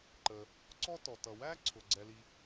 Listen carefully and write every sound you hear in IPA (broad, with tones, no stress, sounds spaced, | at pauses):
ǃ ə˩ | ǀ ɔ˥ t ɔ˩ t ʌ˩ w æ˥ ǀʰ ʊ˩ ɡ͡ǀ ɛ˩ l i˩